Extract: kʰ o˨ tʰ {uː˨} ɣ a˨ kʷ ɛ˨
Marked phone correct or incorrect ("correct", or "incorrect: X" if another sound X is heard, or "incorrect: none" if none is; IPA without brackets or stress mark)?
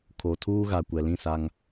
incorrect: uː˦